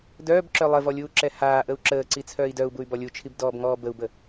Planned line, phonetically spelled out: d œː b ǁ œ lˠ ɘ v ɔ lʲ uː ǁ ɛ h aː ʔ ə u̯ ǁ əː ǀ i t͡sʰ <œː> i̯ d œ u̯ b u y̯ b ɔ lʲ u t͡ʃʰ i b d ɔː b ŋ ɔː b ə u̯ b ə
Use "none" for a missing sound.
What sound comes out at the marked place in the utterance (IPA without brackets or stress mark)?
œː